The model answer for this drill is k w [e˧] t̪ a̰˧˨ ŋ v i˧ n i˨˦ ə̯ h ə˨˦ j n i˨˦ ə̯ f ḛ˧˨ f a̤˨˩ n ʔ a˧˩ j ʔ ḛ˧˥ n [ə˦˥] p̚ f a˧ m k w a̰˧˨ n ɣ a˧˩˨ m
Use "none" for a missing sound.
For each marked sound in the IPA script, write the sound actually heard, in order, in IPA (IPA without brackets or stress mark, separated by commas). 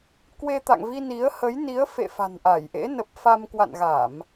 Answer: e˧, ə˨˩